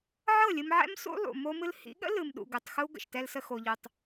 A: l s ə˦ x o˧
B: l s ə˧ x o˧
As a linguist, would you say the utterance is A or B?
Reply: B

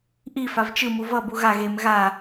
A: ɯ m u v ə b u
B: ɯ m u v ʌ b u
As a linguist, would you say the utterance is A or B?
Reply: B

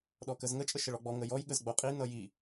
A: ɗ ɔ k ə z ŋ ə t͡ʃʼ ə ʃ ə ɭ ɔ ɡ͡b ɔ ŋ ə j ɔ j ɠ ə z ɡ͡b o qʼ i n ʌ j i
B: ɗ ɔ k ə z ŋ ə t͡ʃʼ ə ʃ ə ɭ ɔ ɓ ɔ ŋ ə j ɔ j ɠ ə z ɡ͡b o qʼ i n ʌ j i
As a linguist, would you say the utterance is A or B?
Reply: A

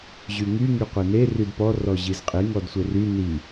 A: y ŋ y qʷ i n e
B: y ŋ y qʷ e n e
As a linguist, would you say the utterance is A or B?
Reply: B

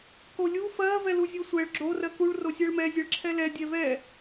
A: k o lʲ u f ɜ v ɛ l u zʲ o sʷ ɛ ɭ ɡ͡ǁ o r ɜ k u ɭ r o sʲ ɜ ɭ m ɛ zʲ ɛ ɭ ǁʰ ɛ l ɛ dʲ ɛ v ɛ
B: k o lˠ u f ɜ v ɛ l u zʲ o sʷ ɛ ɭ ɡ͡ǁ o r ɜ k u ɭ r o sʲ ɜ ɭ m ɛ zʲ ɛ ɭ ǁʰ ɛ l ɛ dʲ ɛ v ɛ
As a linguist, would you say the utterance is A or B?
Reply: A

